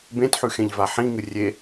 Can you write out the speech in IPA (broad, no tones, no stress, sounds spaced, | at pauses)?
b ẽ t ħ ʉ x ẽ ʎ v a ħ ĩ ŋ ɨ rʲ e